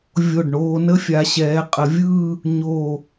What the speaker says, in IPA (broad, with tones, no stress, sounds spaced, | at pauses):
vʲ o˧˩ ɖ ɳ oː˧ n ə˥ fʲ a˩˧ ɕ ɛː˩˧ qʼ ə˩˧ vʲ ɯː˥˧ | ɲ oː˧˩